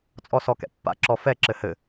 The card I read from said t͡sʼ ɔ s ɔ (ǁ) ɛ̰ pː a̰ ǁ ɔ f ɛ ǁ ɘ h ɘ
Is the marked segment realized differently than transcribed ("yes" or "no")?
yes